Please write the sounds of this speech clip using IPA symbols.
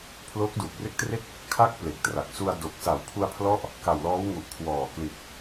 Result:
pʰ l oː˦˥ k̚ d uː˨˩ k̚ r e˥˩ k̚ t r e˥˩ k̚ | kʰ a˦˥ k̚ p l e˨˩ k̚ t r a˨˩ k̚ s u˧ a̯ d o˨˩ k̚ s a˩˦ w pʰ u˧ a̯ pʰ l ɔ˦˥ ʔ | k a˨˩ w l ɔː˦˥ w ŋ u˨˩ ʔ kʰ w ɔː˨˩ k l i˨˩ t̚

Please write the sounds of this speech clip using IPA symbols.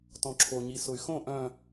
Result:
t ɔ̃ ǁʰ o ɲ i s ʊ y̯ x õ ʔ œ̃

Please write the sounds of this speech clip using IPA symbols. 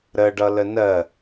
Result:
ɾ ə ɖ ʌ l ə n ɜ

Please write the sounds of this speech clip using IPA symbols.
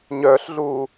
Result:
ɲ œː ɬ ɮ uː

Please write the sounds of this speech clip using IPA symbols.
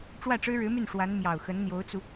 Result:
ʈ͡ʂ w ä˥˩ ʈ͡ʂ ɻ̩˥ ɻ ɻ̩˧˥ m y˥˩ n ʂ w a˧˥ n m j ɑ˨˩ ʊ̯ x ə˧˥ n n̪ j o˧˥ ʊ̯ t͡s u˧

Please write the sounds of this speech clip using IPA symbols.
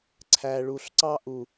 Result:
ǀʰ æ˨ ɭ u˨ ɬ ǀ ɑ˦ ʔ u˨

